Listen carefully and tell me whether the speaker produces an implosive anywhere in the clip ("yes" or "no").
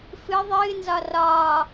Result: no